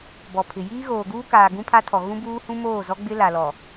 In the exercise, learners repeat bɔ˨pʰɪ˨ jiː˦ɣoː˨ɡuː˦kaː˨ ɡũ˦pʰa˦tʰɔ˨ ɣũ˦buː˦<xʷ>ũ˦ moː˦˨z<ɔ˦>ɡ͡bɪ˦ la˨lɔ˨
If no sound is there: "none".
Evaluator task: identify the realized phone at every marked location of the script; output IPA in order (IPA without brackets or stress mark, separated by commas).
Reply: h, ɔ˦